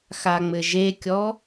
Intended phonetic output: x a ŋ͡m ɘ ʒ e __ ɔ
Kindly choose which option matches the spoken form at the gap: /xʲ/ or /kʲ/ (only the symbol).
kʲ